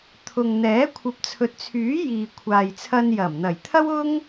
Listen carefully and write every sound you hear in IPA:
t̪ʰ ʊ˨ ŋ n̪ ɛː˨˥ kʷʰ ɐ˨˥ p̚ t͡sʰ ɵ˨ t̚ t͡sʰ yː˨˥ j iː˨ kʷʰ aː˨ j t͡sʰ ɐ˧ n j ɐ˨˩ m n̪ ɐ˨˩ j t̪ʰ ɐ˥ w ʊ˥ ŋ

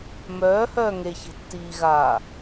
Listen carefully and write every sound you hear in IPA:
m œː h œː ŋ e ç ɛ̤ tː iː ɣ a

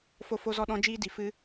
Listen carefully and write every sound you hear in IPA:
f o˧ f o˧ z ɔ˧ ɗ ɔ̃˦ d͡ʒ iː˦ d i˨˦ f ɨ˦

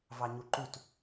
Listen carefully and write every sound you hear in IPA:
v ɑ ɲ u ǃ u t

